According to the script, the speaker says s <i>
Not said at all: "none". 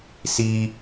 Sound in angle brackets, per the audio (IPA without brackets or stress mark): i